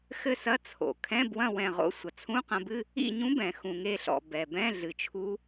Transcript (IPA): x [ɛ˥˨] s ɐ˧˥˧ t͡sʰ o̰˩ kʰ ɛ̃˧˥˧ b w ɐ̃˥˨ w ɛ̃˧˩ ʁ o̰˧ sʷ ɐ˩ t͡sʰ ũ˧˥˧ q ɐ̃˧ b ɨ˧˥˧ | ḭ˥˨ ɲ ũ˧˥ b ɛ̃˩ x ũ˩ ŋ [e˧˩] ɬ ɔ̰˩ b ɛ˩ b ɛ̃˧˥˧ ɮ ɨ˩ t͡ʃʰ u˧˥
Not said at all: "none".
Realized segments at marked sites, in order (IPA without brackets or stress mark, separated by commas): ɘ˥˨, e˧˩